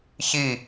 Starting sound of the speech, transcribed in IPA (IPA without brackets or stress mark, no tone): ç